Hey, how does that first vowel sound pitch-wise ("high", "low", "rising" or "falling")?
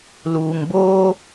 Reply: low